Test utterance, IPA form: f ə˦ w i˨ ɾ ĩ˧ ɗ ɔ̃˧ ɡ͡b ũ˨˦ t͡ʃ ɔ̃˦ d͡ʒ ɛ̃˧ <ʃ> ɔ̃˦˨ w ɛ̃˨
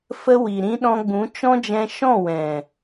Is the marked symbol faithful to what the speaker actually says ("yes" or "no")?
yes